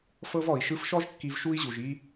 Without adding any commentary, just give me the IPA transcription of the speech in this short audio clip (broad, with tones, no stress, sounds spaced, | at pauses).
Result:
f ɤ˦ v ɔ˨ i̯ ʃ ɯ˧ f ʃ ɔ˦ ʒ kː i˧ v ʃ u˦ i̯ ʑ u˨ ʒ i˦